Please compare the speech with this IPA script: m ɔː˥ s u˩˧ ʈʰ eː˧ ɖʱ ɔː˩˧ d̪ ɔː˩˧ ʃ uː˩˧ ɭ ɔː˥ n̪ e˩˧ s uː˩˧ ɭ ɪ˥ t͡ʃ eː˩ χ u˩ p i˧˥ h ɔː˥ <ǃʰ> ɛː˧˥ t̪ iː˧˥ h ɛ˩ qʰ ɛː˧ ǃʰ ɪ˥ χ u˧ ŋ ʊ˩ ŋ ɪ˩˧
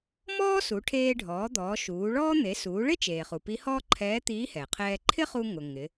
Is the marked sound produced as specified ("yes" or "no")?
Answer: yes